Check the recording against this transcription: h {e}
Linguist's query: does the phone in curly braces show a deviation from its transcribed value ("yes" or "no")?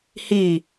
yes